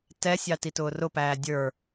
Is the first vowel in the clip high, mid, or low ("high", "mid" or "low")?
mid